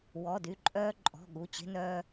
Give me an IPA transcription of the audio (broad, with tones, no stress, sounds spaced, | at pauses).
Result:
w ɔ˩˧˩ d y˩˧˩ ǃʼ œː˧ ǃʼ ɔ̤˩˧˩ ɠ u˩˧˩ t͡ɕ e̤˧ n œː˧